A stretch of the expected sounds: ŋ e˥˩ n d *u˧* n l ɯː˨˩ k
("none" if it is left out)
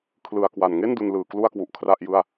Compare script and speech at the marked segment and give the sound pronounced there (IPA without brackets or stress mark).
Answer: u˧